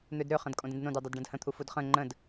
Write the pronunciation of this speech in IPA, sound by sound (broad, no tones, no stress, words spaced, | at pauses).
n̪ødɾøχə̃dkʼõd ə̃dnõdødˤod ɖə̃dhə̃t̪ʰu fudχə̃ ŋ͡ǃə̃d